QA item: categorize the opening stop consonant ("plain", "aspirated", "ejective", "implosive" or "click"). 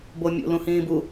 plain